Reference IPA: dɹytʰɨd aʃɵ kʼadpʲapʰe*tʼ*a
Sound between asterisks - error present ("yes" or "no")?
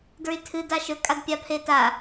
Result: yes